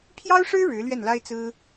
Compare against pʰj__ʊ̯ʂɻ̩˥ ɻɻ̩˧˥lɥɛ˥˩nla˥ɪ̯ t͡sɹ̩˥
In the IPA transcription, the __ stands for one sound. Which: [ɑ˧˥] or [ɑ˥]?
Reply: ɑ˥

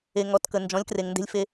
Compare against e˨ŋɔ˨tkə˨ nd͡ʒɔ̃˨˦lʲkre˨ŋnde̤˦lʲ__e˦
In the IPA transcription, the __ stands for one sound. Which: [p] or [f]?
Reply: f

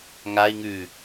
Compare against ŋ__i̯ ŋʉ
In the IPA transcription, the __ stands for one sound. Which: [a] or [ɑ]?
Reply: a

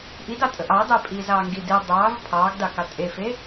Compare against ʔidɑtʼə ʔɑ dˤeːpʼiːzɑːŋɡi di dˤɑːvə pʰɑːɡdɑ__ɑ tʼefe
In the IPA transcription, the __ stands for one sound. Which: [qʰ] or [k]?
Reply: k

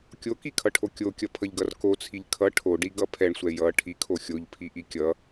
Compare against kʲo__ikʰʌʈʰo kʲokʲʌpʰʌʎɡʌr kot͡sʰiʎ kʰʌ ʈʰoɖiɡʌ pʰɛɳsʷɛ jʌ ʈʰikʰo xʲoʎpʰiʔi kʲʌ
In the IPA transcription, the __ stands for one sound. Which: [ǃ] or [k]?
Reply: k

